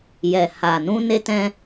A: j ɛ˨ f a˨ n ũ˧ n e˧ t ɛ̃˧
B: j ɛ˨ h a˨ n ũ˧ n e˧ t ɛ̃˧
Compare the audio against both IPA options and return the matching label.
B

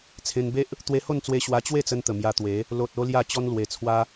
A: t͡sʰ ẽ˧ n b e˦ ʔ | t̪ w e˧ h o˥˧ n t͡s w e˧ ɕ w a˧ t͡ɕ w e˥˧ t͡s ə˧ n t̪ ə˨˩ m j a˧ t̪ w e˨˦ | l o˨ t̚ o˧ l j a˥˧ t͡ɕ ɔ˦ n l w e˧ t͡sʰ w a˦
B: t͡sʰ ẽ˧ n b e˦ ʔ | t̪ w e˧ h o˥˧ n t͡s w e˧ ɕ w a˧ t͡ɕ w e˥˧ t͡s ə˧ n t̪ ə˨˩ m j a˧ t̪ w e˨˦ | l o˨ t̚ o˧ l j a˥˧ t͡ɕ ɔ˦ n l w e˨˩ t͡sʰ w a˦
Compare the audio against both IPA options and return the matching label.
B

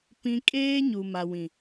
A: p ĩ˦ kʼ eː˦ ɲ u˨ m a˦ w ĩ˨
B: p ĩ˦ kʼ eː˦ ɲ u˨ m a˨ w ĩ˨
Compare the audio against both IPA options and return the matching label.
B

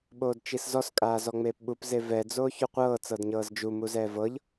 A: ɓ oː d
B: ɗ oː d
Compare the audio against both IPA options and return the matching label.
A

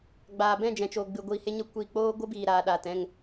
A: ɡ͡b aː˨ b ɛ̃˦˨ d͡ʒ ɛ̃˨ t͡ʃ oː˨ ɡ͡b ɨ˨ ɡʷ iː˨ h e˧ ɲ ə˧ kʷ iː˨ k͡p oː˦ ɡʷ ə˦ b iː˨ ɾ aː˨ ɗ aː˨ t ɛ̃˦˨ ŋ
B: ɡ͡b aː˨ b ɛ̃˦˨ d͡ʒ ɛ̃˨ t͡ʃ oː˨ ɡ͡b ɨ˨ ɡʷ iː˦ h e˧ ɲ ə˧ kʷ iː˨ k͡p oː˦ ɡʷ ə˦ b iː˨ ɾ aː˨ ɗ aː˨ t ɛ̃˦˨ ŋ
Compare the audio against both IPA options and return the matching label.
A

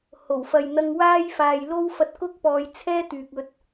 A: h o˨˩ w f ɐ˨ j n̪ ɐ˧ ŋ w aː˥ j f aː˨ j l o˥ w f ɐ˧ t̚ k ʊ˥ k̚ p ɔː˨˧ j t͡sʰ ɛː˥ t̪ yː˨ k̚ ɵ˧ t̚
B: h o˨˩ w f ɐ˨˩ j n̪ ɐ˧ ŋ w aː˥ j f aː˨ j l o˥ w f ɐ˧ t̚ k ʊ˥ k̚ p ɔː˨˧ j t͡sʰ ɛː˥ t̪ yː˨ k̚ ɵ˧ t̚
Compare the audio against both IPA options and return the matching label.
A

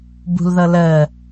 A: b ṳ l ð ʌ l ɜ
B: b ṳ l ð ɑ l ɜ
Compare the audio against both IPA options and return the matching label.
A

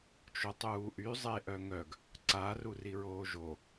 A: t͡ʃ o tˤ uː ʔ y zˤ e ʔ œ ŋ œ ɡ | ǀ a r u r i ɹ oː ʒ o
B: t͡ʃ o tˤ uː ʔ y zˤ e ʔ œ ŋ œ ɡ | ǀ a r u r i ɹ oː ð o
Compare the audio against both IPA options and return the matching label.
A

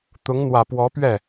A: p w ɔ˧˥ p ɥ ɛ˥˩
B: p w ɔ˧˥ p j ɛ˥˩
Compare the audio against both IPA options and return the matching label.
A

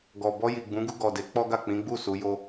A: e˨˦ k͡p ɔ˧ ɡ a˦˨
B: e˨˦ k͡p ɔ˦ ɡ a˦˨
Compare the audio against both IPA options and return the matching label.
B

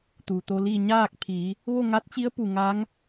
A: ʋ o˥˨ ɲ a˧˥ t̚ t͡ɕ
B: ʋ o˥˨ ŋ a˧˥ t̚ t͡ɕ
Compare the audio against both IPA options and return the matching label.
B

